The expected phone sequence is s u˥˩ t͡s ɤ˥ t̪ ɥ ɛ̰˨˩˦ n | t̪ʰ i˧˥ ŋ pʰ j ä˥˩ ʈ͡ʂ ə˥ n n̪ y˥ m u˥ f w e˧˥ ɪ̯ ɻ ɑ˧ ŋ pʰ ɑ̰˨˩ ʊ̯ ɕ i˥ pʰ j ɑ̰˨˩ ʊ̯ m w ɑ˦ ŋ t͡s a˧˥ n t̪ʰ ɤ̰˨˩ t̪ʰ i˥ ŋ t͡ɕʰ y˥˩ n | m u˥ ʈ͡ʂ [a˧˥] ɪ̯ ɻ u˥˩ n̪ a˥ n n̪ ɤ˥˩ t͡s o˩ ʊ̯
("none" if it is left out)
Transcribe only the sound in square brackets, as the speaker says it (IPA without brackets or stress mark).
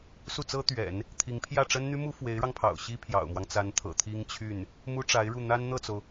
a˧˥